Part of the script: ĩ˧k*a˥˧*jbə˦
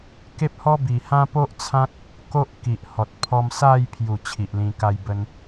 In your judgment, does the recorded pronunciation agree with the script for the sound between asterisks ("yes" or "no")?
yes